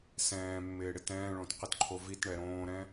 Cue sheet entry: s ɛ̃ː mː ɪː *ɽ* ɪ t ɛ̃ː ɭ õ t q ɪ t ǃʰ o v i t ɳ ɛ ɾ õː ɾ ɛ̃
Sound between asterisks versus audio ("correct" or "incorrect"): correct